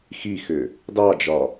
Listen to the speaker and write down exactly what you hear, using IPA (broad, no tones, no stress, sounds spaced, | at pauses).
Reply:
x i x ʏ | d ɑ d͡ʒ ɒ